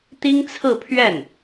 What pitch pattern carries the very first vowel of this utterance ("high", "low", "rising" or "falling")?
high